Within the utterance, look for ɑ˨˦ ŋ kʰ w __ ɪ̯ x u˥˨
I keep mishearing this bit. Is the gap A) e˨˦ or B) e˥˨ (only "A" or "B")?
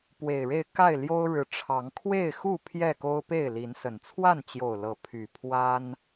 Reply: B